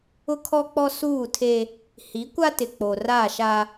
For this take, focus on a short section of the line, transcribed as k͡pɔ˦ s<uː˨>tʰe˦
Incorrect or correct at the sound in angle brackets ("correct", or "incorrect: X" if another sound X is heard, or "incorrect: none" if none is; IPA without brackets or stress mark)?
incorrect: uː˦˨